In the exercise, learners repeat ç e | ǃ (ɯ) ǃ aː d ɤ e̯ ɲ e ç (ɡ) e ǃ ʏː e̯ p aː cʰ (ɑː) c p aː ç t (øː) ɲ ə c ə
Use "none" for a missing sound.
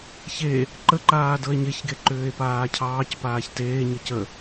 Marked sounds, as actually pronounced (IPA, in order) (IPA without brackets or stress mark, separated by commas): ə, ɡ, ɑː, eː